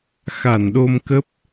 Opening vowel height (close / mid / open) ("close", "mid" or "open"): open